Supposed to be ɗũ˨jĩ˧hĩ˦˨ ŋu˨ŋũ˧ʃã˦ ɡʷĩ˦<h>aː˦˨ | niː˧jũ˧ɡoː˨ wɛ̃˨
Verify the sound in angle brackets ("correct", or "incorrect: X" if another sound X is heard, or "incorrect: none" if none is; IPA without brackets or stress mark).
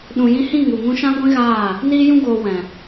incorrect: ɣ